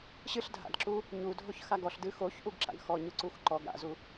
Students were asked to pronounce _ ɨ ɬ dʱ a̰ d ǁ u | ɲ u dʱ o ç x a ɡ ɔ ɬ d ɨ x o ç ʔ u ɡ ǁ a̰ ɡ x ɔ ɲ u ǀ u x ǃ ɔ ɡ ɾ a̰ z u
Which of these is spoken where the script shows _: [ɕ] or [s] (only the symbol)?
ɕ